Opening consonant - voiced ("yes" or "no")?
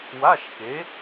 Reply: yes